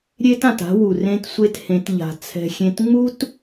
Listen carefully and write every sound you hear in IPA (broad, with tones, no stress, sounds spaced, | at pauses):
ɾʲ e˦ t ã˨ t a̤˦ w u˨ r ẽ˦ t sʷ e˦ t h ẽ˨˦ t ʎ a̤˨ t͡sʰ ɛ̤˦ xʲ ẽ˦ t ŋ͡m u˦ t